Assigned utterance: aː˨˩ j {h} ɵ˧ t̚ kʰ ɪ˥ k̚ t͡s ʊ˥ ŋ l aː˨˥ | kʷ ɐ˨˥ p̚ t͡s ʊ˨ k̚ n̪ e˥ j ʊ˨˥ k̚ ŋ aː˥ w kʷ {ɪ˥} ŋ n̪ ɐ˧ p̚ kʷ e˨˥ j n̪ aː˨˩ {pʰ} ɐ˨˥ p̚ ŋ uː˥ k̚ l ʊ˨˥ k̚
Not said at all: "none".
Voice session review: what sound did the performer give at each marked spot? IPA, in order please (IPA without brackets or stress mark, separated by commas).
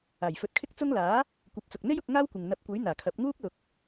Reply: f, ɪ˨, kʰ